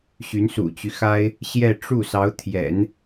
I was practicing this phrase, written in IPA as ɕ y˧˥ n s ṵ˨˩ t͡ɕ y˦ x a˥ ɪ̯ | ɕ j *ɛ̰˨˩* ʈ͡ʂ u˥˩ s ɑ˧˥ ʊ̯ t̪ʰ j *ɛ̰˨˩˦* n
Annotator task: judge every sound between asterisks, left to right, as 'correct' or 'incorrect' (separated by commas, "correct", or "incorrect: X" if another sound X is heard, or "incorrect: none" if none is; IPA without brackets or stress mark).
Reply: incorrect: ɛ˥˧, correct